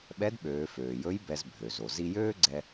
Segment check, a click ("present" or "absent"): present